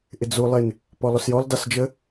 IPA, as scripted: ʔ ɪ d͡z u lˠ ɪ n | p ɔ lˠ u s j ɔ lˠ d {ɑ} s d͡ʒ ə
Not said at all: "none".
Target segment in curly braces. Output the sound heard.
ɑ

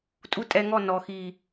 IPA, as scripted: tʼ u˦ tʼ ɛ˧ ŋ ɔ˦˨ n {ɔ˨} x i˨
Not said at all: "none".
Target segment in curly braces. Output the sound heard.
ɔ˨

